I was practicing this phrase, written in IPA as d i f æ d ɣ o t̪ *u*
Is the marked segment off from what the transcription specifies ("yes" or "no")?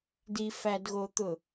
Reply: yes